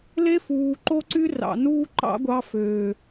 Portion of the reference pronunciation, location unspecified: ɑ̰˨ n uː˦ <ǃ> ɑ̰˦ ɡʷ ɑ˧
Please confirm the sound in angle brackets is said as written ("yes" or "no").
yes